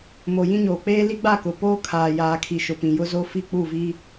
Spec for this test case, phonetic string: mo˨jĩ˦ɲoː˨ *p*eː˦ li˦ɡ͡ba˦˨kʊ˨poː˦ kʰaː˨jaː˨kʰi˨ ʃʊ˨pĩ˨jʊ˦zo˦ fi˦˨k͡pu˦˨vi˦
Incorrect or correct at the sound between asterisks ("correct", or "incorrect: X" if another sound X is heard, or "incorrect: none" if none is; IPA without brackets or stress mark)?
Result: incorrect: k͡p